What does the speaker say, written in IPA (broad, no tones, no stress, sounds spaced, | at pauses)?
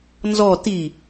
n z ɔ t i